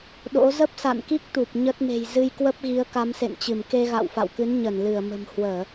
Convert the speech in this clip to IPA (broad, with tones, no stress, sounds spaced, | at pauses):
ɗ o̰˧˥ z ə˦˥ p̚ s a̰˧˨ n k i˦˥ k̚ t̪ u˨˩ p̚ ɲ ə˦˥ t̚ m e̤˨˩ j z ɨ˧ j k w ə˦˥ p̚ ɣ i˨˦ ə̯ k a˨˦ m s ḛ˧˨ n t͡ɕ ɨ˧˩ m k e˧ ɣ a̰˧˨ w f a̰˧˨ w k ɨ˨˦ n ɲ ə˧˩ n l ɨ˧˩ ə̯ m ə̤˨˩ m h w əː˧˩˨